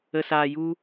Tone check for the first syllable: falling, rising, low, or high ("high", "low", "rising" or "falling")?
low